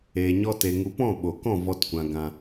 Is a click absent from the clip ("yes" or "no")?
yes